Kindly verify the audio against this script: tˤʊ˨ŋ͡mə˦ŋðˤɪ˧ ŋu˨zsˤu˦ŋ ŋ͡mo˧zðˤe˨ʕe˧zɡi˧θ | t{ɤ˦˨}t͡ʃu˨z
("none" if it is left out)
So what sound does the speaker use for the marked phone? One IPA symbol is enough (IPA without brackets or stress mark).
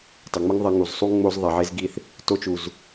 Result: o˦˨